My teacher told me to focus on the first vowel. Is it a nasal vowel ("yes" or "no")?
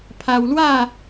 no